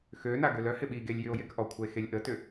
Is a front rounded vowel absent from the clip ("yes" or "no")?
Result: no